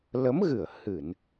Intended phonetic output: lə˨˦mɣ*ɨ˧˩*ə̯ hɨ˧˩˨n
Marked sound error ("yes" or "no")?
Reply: no